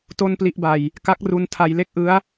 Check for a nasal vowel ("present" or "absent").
absent